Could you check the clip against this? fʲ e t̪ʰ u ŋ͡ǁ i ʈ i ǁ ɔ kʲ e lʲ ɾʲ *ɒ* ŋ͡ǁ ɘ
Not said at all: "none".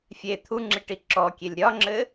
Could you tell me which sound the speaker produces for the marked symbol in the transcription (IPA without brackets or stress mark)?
ɒ